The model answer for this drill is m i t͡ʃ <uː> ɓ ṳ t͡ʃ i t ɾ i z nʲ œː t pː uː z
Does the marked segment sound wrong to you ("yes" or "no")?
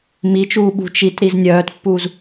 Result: no